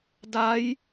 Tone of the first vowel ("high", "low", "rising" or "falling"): rising